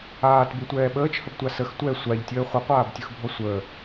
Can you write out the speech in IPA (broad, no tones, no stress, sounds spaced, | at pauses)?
aː t b ɯ tʷ ɛː ɓ əː t͡ʃ h ə b tʷ a s ə x tʷ ɛ sʷ a ʎ tʲ əː χʷ ɯ qʷ aː b tʲ ɯ x bʱ ɔ sʷ əː